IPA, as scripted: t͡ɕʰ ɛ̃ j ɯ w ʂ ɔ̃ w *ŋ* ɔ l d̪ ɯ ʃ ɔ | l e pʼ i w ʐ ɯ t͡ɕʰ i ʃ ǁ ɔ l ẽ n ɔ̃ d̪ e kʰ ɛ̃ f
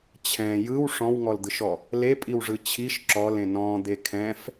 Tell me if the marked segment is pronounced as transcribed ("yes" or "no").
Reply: yes